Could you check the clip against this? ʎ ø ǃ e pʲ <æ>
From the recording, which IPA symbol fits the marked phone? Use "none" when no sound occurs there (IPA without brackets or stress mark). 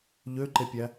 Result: æ